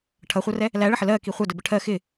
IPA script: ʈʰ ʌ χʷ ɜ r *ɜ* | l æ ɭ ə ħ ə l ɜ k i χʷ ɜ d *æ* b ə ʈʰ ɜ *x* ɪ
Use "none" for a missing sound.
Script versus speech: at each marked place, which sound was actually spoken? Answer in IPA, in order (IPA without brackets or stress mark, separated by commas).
ɛ, ə, x